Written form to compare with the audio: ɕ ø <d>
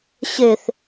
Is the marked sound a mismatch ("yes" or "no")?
yes